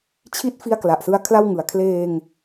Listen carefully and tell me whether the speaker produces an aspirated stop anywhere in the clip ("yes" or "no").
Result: yes